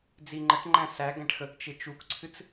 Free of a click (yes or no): no